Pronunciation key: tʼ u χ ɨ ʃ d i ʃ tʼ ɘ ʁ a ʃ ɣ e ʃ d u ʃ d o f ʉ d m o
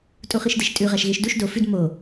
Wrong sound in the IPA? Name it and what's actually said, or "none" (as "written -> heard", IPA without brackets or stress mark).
ɘ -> ʉ